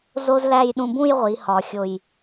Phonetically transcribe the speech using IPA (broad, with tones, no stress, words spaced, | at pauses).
zo˥zlæ˥˧j ɗũ˧bũ˥˧jʁʷi˩˧ hɒ˩˧xʲo˧˩j